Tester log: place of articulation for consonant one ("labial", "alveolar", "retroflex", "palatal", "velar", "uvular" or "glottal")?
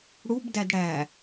retroflex